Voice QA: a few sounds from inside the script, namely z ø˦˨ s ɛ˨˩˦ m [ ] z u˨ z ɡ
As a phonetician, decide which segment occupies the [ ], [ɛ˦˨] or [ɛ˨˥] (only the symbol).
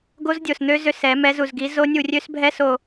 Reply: ɛ˨˥